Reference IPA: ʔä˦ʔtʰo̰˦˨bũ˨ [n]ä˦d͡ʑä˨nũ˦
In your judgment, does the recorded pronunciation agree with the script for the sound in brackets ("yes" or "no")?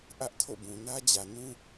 yes